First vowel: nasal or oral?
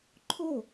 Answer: oral